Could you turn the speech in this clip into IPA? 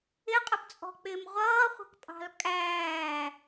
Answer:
ɪ qʼ ə p t͡sʼ ɔ̤ k͡p ɪː m ʁʷ ʌː χʷ ə̤ k pʼ ɑ̤ l kʼ æː

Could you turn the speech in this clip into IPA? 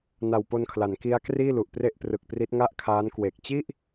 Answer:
n a˨˩ w p o˧ n kʰ l a˩˦ n k i˦˥ a̯ k r iː˥˩ l u˨˩ ʔ p r e˥˩ ʔ p r ɯ˨˩ k̚ p r i˦˥ t̚ ŋ a˥˩ ʔ kʰ aː˦˥ n k w e˨˩ k̚ t͡ɕ i˥˩ ʔ

